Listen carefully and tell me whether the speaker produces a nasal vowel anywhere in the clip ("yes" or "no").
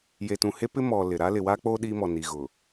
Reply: yes